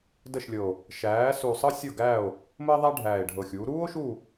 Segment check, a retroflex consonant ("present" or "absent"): present